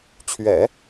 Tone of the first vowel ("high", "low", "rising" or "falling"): low